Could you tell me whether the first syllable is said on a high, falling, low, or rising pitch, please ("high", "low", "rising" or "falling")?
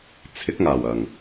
rising